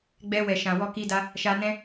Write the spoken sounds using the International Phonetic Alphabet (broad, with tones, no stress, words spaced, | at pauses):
ɡ͡bɛ˧wɛ˨ʃã˨ wɔ˧ki˧da˧ | ʃa˧nɛ̃˦